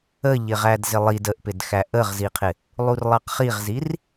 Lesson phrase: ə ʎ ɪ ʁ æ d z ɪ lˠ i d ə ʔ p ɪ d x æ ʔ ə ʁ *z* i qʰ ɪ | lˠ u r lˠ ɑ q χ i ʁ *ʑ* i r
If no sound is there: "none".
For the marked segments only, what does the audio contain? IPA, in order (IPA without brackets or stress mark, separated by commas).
z, z